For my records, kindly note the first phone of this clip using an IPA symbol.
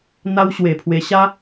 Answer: n̪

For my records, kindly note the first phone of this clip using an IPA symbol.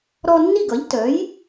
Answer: ɾ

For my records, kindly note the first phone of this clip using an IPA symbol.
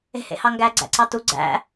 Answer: e̤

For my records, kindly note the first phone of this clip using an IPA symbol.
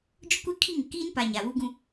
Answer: d͡ʒ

